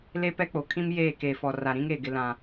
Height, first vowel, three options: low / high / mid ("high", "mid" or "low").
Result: mid